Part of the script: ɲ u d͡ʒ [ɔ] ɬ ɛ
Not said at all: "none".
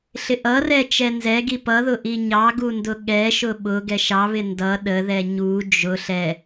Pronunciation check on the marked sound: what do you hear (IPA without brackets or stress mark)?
ʊ